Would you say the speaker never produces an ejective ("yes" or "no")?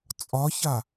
no